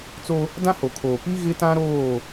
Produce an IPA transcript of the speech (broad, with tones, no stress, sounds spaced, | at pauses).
t͡s o˦ | d ã˦ h o˨ kʰ oː˨ p i˦ ɣ ɪ˦ t ã˦ ɾ oː˦˨